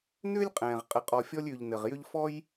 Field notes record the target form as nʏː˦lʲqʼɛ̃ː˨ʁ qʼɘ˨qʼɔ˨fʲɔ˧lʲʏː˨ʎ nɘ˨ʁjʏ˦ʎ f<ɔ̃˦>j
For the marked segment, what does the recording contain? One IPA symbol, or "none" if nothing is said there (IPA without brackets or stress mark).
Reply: ɔ˦